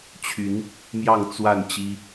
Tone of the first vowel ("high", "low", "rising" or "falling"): rising